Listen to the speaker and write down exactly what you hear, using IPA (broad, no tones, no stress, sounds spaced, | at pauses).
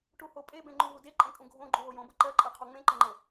ʈ u h o pʼ e b ẽ ŋ͡ǃ ũ ɦ u d e ǃʼ ẽ kʼ ũ ɡʱ õ ɡ͡ǃ u ɦ o j õ b ɤ ǃ ɜ ǃʼ ɜ qʰ o ŋ͡m ẽ ǃ ə ŋ͡ǃ ɤ